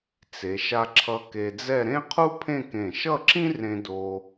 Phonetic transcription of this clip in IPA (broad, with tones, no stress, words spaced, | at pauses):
t͡se˩˧ ʃa˧ǁʰʌ˧ ke˧d͡zɛ˥˧ ɾẽ˥qʰu˥pʰẽ˥˧ kẽ˧˩ ʃʌ˥˧ǁĩ˥rẽ˧ do˧